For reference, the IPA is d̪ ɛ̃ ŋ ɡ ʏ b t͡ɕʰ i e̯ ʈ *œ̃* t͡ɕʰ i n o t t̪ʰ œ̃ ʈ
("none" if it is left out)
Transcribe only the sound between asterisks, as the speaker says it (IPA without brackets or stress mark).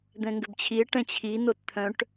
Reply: ɛ̃